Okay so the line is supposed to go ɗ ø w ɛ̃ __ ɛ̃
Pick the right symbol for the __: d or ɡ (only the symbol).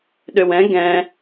ɡ